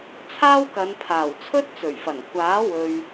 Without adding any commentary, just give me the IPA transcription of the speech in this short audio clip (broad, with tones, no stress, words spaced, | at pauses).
t͡sʰaː˥wkɐ˨˧npʰaː˨˩w t͡sʰɵ˥t̚t͡sɵ˨˩ɥfɐ˨˩n kʷaː˨˥ wɵ˨ɥ